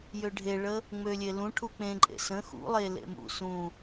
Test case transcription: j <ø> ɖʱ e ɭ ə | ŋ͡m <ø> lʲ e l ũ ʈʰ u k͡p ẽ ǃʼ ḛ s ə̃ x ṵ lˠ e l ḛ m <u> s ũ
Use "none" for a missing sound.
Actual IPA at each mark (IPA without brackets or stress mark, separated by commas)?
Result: ø, ø, ṵ